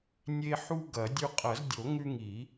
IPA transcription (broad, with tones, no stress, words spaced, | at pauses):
nʲe˦ ħu˦ ɡɐ˨˩˦dʲʉ˦ qʼɐ˨˩˦zdʲo˨˩˦ ŋʉ˦ŋi˨˩˦